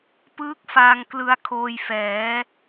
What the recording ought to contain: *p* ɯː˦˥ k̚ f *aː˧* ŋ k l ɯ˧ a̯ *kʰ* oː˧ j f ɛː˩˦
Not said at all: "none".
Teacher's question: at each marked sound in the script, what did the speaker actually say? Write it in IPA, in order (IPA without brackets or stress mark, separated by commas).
p, aː˧, kʰ